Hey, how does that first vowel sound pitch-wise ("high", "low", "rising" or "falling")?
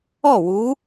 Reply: falling